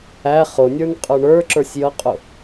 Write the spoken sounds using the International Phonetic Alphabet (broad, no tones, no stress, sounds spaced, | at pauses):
æ χ ʊ nʲ ə˞ n qʼ ə˞ ɳ ə˞ ǁ ə˞ sʲ j ʌ qʼ ʊ